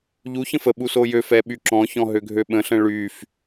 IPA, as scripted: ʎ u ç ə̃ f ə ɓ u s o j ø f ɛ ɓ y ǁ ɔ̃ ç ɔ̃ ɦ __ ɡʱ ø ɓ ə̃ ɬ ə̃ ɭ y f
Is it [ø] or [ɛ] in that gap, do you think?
ø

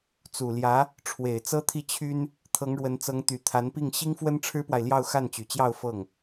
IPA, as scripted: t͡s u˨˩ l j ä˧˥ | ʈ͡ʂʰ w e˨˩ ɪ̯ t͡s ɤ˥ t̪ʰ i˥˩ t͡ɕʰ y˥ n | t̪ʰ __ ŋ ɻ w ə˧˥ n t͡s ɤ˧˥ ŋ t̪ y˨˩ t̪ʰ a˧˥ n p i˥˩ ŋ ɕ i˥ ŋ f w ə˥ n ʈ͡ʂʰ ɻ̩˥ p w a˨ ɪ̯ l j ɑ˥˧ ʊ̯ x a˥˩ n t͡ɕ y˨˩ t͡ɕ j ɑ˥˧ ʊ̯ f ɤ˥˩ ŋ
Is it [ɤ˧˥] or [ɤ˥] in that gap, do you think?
ɤ˧˥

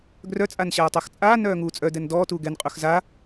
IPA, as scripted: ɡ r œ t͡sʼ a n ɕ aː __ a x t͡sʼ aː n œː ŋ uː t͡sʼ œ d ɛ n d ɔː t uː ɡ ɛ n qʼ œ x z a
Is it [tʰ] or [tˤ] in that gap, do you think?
tˤ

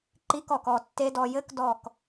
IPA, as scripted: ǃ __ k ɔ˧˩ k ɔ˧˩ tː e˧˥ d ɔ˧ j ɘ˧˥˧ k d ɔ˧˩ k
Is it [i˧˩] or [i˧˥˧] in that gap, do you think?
i˧˥˧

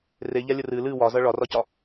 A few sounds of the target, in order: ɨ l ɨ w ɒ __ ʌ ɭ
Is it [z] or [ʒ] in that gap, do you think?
z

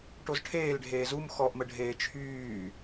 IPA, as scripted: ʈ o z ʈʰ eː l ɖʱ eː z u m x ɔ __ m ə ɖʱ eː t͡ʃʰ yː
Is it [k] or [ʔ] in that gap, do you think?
ʔ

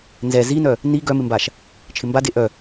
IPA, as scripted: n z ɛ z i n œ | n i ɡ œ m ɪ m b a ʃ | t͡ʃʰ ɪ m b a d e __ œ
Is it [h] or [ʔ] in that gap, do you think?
ʔ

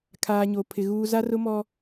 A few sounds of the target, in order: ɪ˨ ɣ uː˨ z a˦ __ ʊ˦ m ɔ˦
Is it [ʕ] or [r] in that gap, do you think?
r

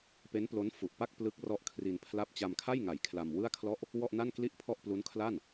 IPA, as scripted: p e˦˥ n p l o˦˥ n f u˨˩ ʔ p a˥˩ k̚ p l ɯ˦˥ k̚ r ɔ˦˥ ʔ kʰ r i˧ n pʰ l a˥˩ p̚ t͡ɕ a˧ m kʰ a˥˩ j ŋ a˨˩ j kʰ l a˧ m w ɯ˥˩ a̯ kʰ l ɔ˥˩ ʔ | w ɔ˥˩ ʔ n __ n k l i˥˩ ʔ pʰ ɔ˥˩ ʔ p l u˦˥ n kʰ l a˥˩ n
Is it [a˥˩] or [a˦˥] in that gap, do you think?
a˥˩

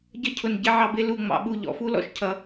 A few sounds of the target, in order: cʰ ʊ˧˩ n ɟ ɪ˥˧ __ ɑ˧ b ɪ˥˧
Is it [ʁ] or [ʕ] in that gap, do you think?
ʕ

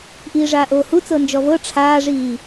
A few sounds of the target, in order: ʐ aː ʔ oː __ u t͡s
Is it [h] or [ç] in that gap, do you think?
h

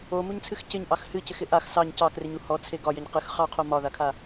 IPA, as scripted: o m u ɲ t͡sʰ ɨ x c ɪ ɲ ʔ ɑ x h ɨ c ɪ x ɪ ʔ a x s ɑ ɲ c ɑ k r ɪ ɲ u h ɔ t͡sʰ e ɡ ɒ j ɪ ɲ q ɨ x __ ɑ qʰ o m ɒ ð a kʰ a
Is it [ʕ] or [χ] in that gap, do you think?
χ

